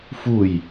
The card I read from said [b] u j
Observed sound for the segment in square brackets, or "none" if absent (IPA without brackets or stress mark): f